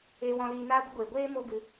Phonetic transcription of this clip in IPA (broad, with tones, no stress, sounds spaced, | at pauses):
eː˧ w ɔ̃˧ l iː˧ n aː˦ ɡʷ ə˦ ɡʷ eː˨ ɡʷ eː˦ m o˦ ɡ ɨ˧